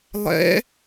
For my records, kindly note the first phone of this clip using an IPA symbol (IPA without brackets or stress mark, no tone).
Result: lˠ